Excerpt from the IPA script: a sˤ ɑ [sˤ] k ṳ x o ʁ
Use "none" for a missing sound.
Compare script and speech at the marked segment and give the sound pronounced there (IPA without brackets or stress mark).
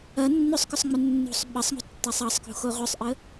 sˤ